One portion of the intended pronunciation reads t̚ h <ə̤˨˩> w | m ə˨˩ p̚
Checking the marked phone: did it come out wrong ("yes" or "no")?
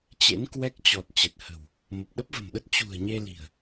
no